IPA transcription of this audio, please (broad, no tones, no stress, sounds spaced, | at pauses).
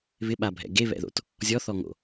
β ɪ ɓ a bʱ ɛ̰ ɡ e β ɛ̰ ð o̰ t | zʲ ɔ θ ɔ ŋ o̰